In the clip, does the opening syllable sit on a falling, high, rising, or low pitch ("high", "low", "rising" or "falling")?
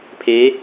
rising